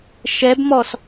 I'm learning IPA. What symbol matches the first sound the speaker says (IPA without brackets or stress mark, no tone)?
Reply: ʃ